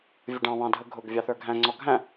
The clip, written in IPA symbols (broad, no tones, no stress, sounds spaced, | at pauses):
vʲ ʊ ɖ ɑ̃ β ɑ̃ dʱ ə ɡʱ ʊ ɡ vʲ ɑ θ ə˞ ɡʱ æ̃ ŋ͡ǀ ɔ ɡʱ æ̃